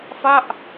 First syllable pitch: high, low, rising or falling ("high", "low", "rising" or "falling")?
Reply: falling